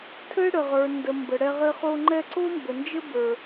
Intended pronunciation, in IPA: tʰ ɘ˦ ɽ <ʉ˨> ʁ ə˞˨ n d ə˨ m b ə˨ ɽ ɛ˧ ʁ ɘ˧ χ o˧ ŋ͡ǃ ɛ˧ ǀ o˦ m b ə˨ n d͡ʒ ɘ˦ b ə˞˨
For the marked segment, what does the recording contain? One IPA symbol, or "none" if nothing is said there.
ə˨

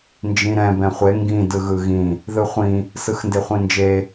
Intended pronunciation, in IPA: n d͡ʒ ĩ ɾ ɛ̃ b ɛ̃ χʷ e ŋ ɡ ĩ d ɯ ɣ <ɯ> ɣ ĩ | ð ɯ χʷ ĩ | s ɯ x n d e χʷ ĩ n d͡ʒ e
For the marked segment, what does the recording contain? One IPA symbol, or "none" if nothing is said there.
ɯ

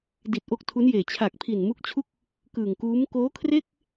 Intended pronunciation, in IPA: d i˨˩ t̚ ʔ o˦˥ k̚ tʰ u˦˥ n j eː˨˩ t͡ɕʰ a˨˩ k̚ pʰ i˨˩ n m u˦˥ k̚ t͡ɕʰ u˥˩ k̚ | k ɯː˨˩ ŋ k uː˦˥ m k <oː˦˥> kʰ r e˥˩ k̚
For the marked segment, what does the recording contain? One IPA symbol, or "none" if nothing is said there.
oː˦˥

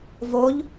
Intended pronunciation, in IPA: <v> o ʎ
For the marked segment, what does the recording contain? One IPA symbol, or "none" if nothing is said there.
v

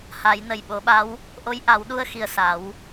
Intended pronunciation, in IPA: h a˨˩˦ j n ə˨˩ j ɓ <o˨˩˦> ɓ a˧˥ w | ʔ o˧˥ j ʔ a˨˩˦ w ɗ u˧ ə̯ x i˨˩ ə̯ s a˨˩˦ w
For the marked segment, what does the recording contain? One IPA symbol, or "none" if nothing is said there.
o˨˩˦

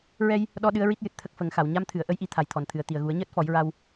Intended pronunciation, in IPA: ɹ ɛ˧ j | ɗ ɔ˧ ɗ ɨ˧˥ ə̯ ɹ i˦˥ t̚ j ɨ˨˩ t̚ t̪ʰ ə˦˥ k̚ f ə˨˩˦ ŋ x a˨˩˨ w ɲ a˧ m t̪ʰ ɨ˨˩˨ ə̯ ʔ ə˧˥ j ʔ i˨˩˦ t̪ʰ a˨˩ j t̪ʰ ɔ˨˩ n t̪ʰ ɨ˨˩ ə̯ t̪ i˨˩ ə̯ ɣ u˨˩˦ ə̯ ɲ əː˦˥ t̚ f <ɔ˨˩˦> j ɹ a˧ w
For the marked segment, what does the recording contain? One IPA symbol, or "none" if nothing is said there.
ɔ˨˩˦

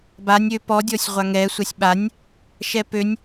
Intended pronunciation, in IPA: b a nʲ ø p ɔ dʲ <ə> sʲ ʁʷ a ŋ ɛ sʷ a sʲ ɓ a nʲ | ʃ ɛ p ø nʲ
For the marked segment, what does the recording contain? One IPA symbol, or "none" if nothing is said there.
ɔ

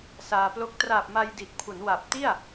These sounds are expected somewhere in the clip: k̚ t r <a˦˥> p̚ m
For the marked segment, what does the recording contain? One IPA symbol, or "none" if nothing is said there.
a˨˩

